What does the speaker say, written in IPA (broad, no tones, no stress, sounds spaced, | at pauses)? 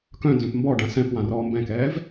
k œ̃ n z œ̃ p m b ɔ ɖ ã s ɛ̃ p w ã r ɔː m b ɛ̃ k ɛː v